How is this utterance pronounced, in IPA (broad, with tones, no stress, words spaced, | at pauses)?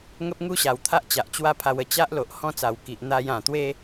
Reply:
ŋə˦p̚ŋu˥˧ɕa˨˩w t̪ʰa˦ʔt͡ɕa˨ʔ t͡ɕwa˥˧pʰa˧wə˧ t͡ɕa˦ʔlo˨ʔ hɔ̃˦t͡sa˨˩w ki˨ʔ n̪a˧jã˨˩t̪we˦